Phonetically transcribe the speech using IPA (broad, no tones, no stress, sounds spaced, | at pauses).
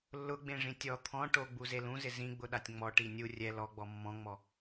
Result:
lː ʊ ɡ͡b ẽ ʐ ĩ tʲ ɔ t̪ʰ ɔ̃ ʈ o ɡ͡b u z e l ũ z ɪ z ĩ ɡ͡b ʊ ɗ a tʲ ŋ͡m ɔ ʈ i nʲ u rʲ ɛ l ɔ ɡ͡b ɔ mː ɔ̃ ŋ͡m ɔ